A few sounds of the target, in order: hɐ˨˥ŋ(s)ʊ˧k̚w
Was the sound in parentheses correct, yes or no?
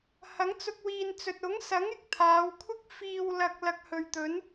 no